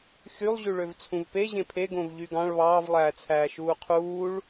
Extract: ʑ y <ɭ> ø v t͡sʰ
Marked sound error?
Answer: no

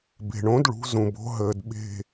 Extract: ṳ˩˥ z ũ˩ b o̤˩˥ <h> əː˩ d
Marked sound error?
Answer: yes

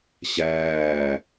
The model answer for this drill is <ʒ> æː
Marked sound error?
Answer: yes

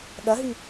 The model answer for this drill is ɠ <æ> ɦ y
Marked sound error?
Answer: yes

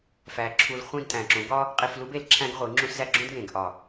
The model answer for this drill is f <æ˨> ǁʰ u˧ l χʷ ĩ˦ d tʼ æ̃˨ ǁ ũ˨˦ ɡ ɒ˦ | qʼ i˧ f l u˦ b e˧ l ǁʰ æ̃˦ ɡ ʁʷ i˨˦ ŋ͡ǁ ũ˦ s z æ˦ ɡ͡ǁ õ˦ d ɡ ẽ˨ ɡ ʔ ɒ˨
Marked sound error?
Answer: yes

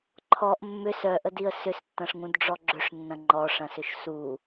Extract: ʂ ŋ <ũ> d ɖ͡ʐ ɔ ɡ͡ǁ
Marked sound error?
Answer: no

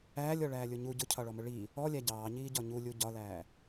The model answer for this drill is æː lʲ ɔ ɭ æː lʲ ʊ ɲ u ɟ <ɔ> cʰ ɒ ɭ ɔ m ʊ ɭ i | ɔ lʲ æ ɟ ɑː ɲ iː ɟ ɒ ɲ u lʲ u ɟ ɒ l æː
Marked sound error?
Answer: yes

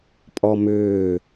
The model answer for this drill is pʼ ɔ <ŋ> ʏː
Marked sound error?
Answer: yes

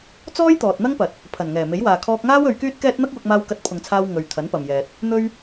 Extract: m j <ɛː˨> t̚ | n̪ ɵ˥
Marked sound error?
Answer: no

